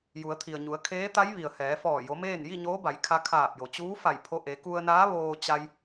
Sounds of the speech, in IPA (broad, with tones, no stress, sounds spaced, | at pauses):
j u˩˧ ə̯ t̪ʰ i˩ ə̯ ɲ u˩˧ ə̯ kʰ eː˧˥ t̪ a˧˥ j ʋ i˩ ə̯ h ɛː˩˧ f ɔː˧˩ j o˩˧ m eː˥˨ n j i˥˨ ɲ oː˧˥ b a˩˧ j kʰ a˧ kʰ aː˧˩ p̚ j o˩ t͡ɕ uː˧˥ f a˧˩ j pʰ o˧ ʔ e˩˧ k u˧ ə̯ n aː˧˥ ʋ oː˧ t͡ɕ a˧ j